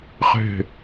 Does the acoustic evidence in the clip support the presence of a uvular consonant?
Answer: yes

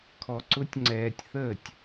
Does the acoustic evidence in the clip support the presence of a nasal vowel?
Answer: no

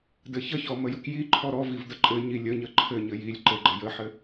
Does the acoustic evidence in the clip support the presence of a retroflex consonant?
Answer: no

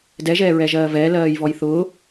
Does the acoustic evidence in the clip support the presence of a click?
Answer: no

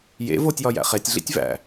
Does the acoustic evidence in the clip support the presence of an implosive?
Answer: no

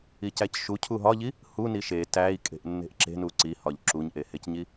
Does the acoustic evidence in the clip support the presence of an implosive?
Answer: no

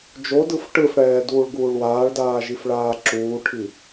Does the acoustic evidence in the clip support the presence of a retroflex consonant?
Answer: yes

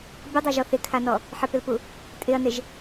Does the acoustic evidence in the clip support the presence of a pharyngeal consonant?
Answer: yes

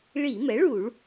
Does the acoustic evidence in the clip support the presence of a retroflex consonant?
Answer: yes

